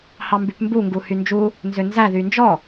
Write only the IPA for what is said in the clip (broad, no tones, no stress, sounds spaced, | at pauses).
h ɑ m b y p m b u ŋ ɡ u h y n d͡ʒ u | n z ø n z æ ð y n d͡ʒ ɔ